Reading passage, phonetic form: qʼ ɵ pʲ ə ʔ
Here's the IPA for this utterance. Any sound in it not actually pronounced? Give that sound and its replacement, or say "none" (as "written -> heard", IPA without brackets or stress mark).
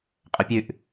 ə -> ʉ